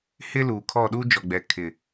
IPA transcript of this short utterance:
h ɪ˦ l uː˨ kʰ ɔ˦˨ ɗ uː˦ d͡ʒ ɔ˨ ɡ͡b ɛ˨ kʰ ɪ˨

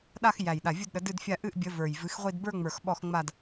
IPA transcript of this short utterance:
ɗ a˥˧ x j æ˧˩ j ɗ a˧˩ vʲ u˥˧ d ɗ ə˨˥ d ɨ˥˧ d fʲ a˥˧ ʔ ɨ˥˧ ʔ bʲ ə˨˥ v ə˞˧˩ j v ɨ˨˥ x ʁʷ i˥˧ d b ə˞˥˧ ŋ͡m ə˞˧˩ x ɓ ɔ˥˧ x ŋ͡m a˥˧ d

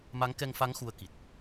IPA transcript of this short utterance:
m a˨˦ ŋ k ɛ˧ ŋ f a˨˦ ŋ x u˧ ə̯ k i˨˩ t̚

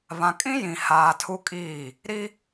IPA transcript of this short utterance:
β ã˨ kʼ ĩ˦ j ĩ˨ h aː˨ tʰ u˦ kʼ iː˦˨ | ɾ i˦

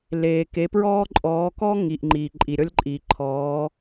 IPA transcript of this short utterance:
l eː˩ k e˩˧ p ɹ ɔː˦ ǃʼ ɔː˩˧ k ɔ˦ ŋ i˩ ʔ ŋ͡ǃ iː˩ ǃʼ i˩ ɾʲ ɔ˦ lʲ ǃʼ iː˩ ǃʰ ɔː˩˧

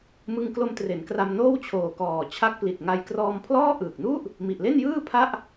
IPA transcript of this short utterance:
m ɯ˧ ŋ k l o˧ m t r e˩˦ n k r a˧ m n oː˥˩ w t͡ɕʰ oː˨˩ k ɔː˨˩ t͡ɕʰ a˦˥ k̚ p l i˨˩ t̚ ŋ a˧ j k r ɔː˧ m pʰ l ɔː˥˩ ʔ ɯː˨˩ k̚ n u˥˩ ʔ | m i˨˩ ʔ l e˥˩ n j ɯː˥˩ pʰ a˥˩ ʔ

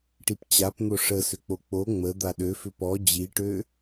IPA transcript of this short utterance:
ʈ i p t͡ɕ a p n̪ o ʂ ə s ʏ k͡p o k͡p o ŋ͡m ə d̪ a ɗ ø f ʏ p ɔ d͡ʑ i ʈ ø

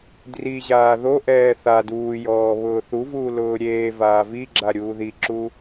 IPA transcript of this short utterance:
d r i ʑ aː ð o ʔ ɛː θ a d uː j ɔː β ʊː θ u v uː l ʊː ɾʲ eː v aː v i ɡ͡ǁ a ɾʲ uː ð i ǁ u

